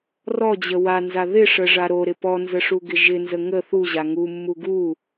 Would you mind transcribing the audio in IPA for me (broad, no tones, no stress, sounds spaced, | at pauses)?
r ɔ d͡ʑ ə w a n z a ð ɪ ʂ ə ʐ a ɾ o ɾ ɪ p ɔ n z ə ʂ u ɡ ɪ ʒ ɪ n z ə ŋ ə θ u ʑ a ŋ u mː u ɡ u